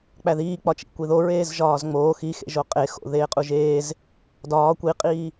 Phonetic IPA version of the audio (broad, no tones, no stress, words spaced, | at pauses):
k͡pæðiːk͡pɒt͡ʃḭ kʷiðo ɹeːzʒɒːzŋ͡moː xixḛʒo qʼexo̰ ðeːqʼuʒeːz | dɒː kʷiqʼiː